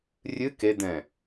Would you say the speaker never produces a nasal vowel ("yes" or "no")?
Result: no